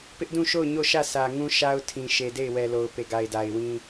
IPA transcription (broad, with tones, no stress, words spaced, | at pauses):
pɪ˦ʔdũ˦˨ʃo˦˨ʊ̯ ɲo˦˨ʃä˦˨ sä˨ŋũ˦ ʃa˦ʊ̯ tʰĩ˨ ʃe˨de˦˨ɪ̯ wɛ˨ lo˨ʊ̯pe˨ɡa˨ɪ̯da˨ɪ̯ wĩ˦